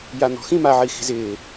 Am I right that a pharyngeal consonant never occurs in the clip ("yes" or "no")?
no